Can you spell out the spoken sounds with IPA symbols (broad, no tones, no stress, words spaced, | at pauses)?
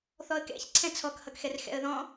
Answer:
θɔə̯kɛ̰ç ǀʰɛ̃t͡sʰɔk hʌkxɛrxɛ̰ə̯ðɔ̃